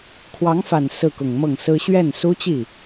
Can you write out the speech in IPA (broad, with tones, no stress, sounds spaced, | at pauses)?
kʰ w ɑ˧˥ ŋ f a˨˩ n s ɹ̩˥˩ k ʊ˨˩ ŋ m ɤ˥˩ ŋ s ɹ̩˥ ɕ ɥ ɛ˥˩ n s u˥ t͡ɕ i˥˩